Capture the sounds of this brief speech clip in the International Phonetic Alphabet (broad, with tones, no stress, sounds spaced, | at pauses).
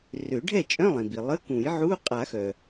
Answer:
r ø˨˩˦ ɖʱ ɛ˥˩ t͡ʃʼ œ̃˧˥˧ lˠ ĩ˩ b i˩ lˠ ə˧˥˧ k ũ˨˩˦ j ʕ u˧˥˧ qʼ a˨˩˦ x œ˩